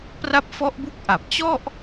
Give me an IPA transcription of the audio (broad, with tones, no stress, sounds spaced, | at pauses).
p r a˦˥ p̚ f ɔ˦˥ ʔ b u˦˥ k̚ ʔ a˨˩ p̚ t͡ɕ ɔ˥˩ ʔ